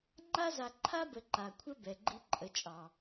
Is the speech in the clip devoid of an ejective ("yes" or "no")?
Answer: no